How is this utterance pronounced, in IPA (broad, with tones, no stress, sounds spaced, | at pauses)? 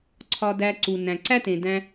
ǀʰ ɒ˧ d æ˧ ǀ u˩ n æ̃˩ ǀ æ˥ t ẽ˩ d æ̃˧